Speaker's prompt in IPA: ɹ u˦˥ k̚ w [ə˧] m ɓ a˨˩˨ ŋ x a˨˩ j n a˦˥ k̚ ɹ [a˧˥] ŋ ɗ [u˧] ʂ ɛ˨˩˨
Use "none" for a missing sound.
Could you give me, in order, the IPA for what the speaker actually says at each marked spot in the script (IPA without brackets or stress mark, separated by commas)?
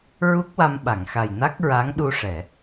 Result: a˧, a˧˥, u˧